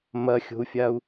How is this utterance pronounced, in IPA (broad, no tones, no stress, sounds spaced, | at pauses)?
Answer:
m ɐ xʲ o̤ u̯ fʲ a u̯